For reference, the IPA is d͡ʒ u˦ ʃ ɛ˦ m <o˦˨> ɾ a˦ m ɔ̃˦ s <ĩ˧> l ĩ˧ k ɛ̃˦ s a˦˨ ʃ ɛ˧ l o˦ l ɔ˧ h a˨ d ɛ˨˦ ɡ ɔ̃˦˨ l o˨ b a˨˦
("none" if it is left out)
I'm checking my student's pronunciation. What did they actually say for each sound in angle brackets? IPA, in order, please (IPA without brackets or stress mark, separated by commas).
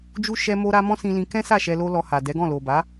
o˦, ĩ˧